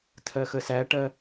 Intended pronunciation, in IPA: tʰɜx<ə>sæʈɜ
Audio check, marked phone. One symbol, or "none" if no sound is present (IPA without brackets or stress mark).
ə